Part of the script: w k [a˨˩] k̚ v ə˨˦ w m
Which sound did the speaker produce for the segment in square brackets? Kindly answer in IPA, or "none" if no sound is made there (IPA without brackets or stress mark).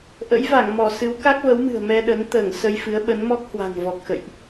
a˦˥